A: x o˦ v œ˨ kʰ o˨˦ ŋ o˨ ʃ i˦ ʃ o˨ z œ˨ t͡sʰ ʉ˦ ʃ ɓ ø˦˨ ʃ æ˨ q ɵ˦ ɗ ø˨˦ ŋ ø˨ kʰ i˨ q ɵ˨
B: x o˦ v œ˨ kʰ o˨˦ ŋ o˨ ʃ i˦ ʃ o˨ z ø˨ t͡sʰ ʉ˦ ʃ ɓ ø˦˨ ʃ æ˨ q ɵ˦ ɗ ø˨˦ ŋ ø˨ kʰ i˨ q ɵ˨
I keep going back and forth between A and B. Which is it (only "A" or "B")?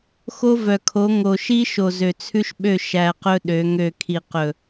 B